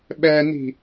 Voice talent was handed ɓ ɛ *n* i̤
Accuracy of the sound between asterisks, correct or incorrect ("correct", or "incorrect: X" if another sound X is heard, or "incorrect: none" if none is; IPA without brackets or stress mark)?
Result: correct